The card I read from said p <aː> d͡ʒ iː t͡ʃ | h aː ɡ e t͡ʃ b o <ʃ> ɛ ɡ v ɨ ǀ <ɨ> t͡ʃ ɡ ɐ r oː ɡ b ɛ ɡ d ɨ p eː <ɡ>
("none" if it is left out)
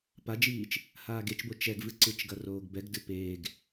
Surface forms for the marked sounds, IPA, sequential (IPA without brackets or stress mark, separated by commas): a, t͡ʃ, ɨ, ɡ